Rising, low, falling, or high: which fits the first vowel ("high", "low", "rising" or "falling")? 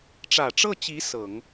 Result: low